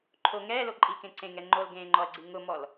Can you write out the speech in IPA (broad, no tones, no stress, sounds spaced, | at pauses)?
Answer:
ǃʰ o ŋ ɛː l o ǃʼ i k ẽ ǀ ẽ ŋ ɛ ŋ͡ǃ o l ɡ ẽː ŋ͡ǃ ɔ ɐ̯ ɡ͡ǀ i ŋ ʊ m ɔ l